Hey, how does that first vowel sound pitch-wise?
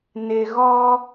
low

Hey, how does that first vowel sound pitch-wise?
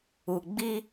low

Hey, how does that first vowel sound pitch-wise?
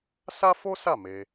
high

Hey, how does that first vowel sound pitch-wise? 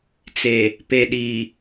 low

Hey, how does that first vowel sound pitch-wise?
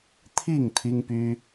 falling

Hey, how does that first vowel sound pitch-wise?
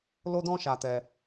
high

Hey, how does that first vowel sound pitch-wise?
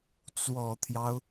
low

